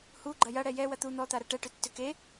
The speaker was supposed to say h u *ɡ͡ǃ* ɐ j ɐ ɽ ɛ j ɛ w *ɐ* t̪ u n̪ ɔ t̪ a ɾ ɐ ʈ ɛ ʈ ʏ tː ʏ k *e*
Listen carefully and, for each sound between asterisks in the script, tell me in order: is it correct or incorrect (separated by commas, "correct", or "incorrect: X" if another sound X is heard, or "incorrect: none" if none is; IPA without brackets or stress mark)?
correct, correct, correct